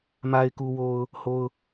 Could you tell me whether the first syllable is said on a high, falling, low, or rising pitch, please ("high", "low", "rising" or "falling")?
low